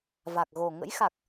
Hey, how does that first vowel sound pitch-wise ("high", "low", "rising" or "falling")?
low